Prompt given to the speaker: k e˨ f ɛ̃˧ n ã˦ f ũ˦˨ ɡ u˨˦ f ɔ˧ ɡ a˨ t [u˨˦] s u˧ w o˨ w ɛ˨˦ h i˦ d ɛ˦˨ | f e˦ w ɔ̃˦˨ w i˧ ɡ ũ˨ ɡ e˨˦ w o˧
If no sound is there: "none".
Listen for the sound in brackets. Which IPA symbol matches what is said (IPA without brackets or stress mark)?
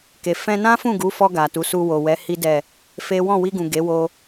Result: u˨˦